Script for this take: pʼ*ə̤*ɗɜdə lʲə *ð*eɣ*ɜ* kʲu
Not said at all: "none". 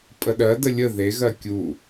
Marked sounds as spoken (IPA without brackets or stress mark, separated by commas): ə, ð, ɜ